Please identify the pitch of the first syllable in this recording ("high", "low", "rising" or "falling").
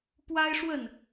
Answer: high